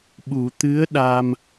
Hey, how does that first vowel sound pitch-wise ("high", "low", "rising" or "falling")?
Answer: low